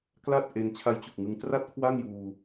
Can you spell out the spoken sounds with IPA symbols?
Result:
k l a˥˩ t̚ ʔ e˧ n t͡ɕʰ a˦˥ j t͡ɕ u˨˩ k̚ ŋ ɯ˧ ŋ t r a˥˩ t̚ kʰ w a˥˩ ŋ j uː˧

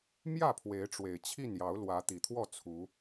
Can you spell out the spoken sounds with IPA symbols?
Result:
m j ä˥˨ pʰ w e˨˦ ɪ̯ ʈ͡ʂ w e˨˩ ɪ̯ t͡ɕʰ i˥˨ n j ɑ˨˦ ʊ̯ l w ä˨˦ t̪ i˨˩ t̪ʰ w ɔ˥˨ t͡sʰ u˨˦

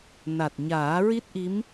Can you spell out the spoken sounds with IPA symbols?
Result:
n a˨˩ t̚ ɲ aː˨˩˦ ɹ i˦˥ t̚ ʔ i˧˥ m

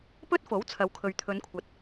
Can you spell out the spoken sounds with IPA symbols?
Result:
p ɵ˥ t̚ f o˨˥ w t͡sʰ ɐ˨˧ w kʰ ɵ˨ ɥ t̪ʰ ɵ˨˧ n kʷʰ ɐ˨ t̚

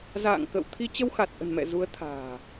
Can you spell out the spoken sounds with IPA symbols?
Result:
z a̰ː˧˨ ŋ k ə̰˧˨ w t̪ʰ i˧ t͡ɕ ə˧ w x a˨˩ t̚ ʔ ə̤˨˩ n m ɛ̰˧˨ z u˨˦ ə̯ t̪ʰ a̤ː˨˩

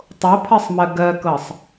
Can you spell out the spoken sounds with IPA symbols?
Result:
tˤ o pʰ ɜ sˤ m ɜ ɡ ɜ k ɤ sˤ

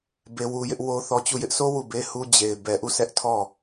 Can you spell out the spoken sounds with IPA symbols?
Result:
b e˦ w u˦ j ɪ˦ ʔ w o˦ θ ɔ˦ t͡ɕ u˦˨ j ɪ˦ ʔ sʰ o˦ w u˦˨ b e˦ h u˦ d͡ʑ e˨ ɪ̯ b ɛ˨ ʔ u˦˨ sʰ ɛ˦ ʔ tʰ ɔ˦˨

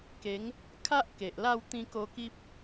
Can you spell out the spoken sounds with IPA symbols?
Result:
k e˨˦ ŋ | kʰ a˦ ʔ k e˨ ʔ l a˥˧ w t̪ ĩ˧ k o˧ k i˦ p̚

